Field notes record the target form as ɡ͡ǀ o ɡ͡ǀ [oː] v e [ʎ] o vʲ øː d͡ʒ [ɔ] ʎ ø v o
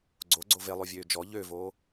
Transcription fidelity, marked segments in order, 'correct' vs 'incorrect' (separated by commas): incorrect, incorrect, correct